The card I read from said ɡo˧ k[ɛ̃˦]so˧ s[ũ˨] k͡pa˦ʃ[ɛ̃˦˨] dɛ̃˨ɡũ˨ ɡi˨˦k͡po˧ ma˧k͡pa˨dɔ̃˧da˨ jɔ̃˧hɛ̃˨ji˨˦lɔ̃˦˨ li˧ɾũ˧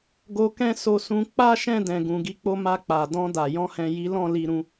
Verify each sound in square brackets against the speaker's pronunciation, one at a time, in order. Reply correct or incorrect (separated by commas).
correct, incorrect, correct